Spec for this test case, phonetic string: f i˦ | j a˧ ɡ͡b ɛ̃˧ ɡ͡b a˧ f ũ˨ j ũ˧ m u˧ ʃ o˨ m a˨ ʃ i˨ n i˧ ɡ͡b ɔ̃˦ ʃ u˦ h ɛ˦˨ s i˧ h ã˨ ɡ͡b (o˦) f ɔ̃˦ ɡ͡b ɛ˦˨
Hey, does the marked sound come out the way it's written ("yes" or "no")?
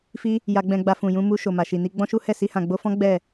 no